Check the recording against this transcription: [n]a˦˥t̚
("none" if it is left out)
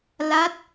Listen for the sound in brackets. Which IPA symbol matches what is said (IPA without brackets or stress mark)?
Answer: l